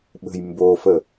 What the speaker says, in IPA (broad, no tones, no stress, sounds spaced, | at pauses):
ɓ ə̤ j m b o f ə